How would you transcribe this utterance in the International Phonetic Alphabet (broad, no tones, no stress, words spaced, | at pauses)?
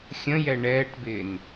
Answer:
xʲə̃jɛ ɳɛːʈbɪːn